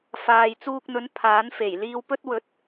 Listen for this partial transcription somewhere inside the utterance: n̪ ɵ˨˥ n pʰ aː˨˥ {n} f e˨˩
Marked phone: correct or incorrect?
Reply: correct